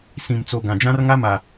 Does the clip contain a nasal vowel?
yes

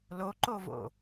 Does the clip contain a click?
yes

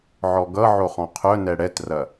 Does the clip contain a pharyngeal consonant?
yes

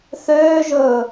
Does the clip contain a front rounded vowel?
yes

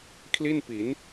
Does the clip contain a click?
no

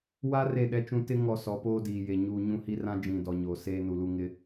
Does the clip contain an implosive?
yes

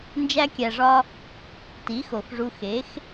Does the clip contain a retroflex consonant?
yes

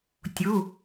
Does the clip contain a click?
no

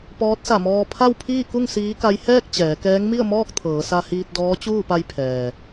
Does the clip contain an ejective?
no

